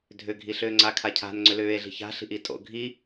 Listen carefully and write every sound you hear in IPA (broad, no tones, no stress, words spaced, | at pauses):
dʱʏɡʱiɬʏː ŋ͡ǀakʰacʰa̤n ŋ͡ǀʏlʏːe̯ ɮi̤ça̤ɬi̤ʔi tʼo̰ ɡʱi